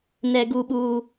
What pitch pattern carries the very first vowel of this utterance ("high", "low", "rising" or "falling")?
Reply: high